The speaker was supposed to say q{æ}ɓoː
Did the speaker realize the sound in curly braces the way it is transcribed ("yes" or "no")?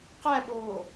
yes